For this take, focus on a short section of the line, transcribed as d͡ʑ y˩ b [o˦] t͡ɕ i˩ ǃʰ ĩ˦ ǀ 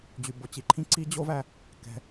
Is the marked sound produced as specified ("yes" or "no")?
no